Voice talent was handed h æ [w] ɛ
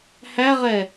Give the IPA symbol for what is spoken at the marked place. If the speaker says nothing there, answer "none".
ʁ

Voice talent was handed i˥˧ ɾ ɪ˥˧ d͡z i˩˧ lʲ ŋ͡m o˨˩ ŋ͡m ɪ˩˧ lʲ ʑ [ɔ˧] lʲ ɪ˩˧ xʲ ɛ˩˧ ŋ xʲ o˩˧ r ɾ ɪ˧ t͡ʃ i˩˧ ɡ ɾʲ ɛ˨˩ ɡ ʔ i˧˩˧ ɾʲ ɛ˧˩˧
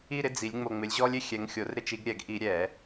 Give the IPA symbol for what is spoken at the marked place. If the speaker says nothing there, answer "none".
ɔ˧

